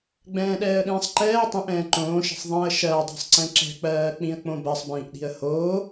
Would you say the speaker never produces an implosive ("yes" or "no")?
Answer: no